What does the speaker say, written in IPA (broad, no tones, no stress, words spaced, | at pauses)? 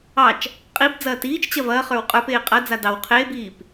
ɑt͡ʃ | qʼib d͡zɐːtiːt͡ʃt͡ɕɐ vɐːχə˞w qʼə˞peː qʼɐd͡za dɑw qʰeːbiːp